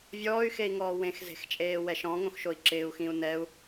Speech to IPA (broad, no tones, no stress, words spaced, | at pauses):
vʲɔːy̯xei̯ŋɔː wẽxze̤xt͡ʃʼeː wɛʃɔ̃ŋõx ʃoi̯ǁɪːu̯xĩu̯ nɛu̯